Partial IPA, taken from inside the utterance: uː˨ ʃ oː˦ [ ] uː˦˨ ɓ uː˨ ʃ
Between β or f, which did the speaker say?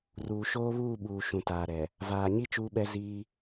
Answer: β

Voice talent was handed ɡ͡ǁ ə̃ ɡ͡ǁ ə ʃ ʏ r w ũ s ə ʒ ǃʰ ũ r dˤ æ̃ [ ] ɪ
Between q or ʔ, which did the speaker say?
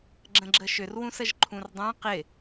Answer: q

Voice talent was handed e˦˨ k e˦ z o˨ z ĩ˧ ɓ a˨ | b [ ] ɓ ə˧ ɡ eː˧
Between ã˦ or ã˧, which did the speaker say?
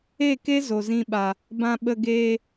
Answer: ã˧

